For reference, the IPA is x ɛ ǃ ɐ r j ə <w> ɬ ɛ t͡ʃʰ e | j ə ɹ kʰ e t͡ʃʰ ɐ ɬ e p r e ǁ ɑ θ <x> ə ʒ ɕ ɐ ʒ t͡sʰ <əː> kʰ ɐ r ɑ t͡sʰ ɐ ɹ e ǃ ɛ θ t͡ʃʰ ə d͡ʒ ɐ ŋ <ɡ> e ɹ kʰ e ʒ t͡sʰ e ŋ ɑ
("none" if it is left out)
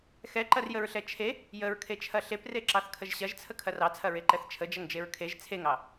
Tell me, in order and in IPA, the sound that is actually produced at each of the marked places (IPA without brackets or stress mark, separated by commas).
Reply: ɹ, kʰ, ə, d͡ʒ